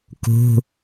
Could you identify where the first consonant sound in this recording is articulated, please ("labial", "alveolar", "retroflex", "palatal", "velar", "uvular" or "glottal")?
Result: velar